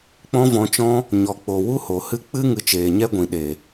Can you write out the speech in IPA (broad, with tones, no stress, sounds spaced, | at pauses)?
k͡p ɔ̃˦ v ɔ̃˧ t͡ʃ ɔ̃˦ | ɲ ɔ˨ k͡p o˨ w u˦ h o˨ h ɨ˦ k͡p ɨ˦ ŋ ɨ˧ t͡ʃ eː˨ ɲ ɛ˦ ɡʷ ĩ˨ ɗ e˨